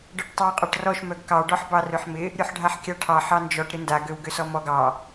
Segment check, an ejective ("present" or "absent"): present